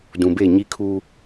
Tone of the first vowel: low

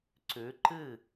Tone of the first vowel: rising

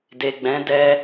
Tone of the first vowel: low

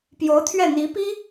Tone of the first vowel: rising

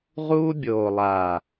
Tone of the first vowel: high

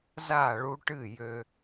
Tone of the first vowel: falling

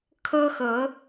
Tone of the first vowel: high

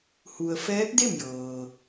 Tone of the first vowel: low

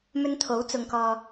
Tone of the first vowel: high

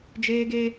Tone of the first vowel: high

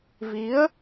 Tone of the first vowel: rising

